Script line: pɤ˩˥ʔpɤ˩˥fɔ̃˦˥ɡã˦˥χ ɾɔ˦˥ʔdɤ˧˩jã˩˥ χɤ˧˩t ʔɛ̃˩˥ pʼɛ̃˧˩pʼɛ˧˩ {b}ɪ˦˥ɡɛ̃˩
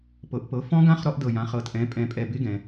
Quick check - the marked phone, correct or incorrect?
correct